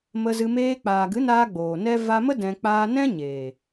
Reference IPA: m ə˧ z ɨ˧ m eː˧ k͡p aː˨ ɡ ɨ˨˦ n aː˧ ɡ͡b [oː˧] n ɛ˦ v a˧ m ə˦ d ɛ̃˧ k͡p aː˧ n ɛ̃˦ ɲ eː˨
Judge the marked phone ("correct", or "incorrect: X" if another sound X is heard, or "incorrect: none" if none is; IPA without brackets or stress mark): incorrect: oː˨